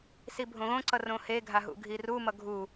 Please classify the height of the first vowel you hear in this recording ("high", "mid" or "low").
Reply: high